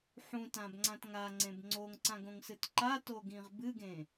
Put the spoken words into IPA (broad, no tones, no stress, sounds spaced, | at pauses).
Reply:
ħ ũ t ã b ŋ͡ǀ ã t ŋ a ŋ͡ǀ ẽ b ŋ͡ǀ o ŋ ǀ ã ɡ õ ŋ s ɨ t ǃ a t o ɡ ĩ ʁ b ɨ ɡ ẽ